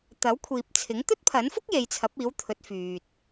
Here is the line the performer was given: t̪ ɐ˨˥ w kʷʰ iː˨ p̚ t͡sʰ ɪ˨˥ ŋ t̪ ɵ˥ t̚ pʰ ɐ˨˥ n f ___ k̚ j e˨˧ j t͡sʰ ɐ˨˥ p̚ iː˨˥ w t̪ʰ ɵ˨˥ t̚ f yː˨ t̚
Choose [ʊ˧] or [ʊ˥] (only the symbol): ʊ˥